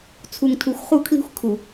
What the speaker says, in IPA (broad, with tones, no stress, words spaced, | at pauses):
t͡sʰu˨ŋtʰu˨xʷ χu˦˨kʰli̤˦xʷ kʰu˨